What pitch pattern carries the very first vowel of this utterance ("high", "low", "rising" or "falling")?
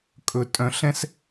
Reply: low